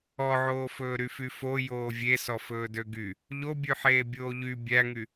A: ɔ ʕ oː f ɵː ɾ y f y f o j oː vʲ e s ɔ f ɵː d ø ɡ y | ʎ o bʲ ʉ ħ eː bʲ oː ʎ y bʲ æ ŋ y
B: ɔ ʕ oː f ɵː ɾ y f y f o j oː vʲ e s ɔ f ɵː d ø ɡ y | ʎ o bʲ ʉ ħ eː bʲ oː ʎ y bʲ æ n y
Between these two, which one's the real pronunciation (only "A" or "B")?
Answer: A